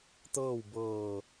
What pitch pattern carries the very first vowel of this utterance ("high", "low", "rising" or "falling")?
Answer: falling